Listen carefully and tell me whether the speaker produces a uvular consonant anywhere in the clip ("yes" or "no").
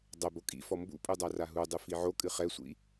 yes